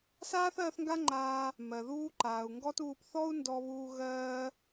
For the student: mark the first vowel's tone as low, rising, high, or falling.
high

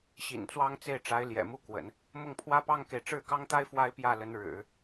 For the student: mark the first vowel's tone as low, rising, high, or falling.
low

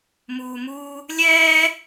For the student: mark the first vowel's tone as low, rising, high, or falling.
low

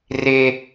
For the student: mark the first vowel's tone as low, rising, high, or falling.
low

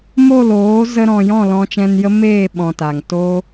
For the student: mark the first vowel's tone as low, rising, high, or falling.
falling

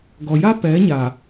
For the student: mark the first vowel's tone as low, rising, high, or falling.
low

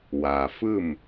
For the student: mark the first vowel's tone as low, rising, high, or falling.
low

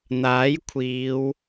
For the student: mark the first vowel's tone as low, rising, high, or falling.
rising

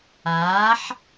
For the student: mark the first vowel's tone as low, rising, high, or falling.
rising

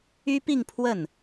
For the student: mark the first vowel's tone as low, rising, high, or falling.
high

